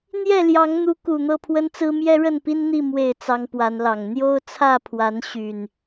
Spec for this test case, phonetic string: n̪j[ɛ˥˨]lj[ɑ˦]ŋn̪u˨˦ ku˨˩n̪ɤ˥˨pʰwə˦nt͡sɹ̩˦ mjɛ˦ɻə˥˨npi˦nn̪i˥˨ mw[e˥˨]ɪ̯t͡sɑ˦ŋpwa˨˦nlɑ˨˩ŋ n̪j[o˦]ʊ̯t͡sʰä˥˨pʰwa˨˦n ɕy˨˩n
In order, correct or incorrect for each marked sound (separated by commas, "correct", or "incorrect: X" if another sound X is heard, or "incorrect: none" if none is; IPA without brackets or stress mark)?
correct, incorrect: ɑ˨˦, correct, correct